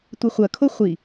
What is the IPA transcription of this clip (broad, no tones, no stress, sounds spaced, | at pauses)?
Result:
tʷ ɘ χʷ ɐ kʰ o χʷ i